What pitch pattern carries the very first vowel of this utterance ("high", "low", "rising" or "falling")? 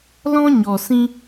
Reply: high